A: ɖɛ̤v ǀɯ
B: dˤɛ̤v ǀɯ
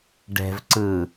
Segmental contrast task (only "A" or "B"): A